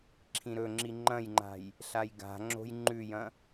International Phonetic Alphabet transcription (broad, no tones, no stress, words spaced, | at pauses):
ǁʰĩɾɵŋ͡ǁi ŋ͡ǃɐ̃jŋ͡ǃa̤j | ɬajɡa̤ŋ͡ǁo̤j ŋ͡ǃʉjɐ̃